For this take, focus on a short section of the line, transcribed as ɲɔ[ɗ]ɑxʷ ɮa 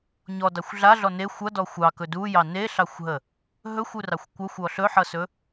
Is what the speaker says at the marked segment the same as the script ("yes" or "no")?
no